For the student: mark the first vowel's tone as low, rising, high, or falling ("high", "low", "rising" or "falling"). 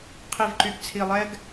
low